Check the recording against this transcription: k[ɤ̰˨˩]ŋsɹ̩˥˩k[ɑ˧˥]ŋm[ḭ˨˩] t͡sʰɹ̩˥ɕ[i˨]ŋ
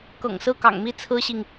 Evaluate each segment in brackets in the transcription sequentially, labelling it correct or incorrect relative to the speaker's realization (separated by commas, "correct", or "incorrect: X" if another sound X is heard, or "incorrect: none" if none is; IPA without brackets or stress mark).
correct, incorrect: ɑ̰˨˩, incorrect: i˥˩, correct